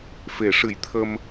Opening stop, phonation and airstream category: aspirated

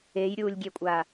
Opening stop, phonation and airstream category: plain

